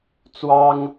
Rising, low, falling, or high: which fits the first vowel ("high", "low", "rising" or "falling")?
high